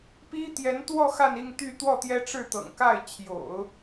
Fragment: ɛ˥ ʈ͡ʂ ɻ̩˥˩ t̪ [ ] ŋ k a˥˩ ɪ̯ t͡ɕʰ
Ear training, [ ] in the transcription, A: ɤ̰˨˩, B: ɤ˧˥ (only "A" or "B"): A